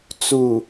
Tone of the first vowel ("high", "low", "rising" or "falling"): low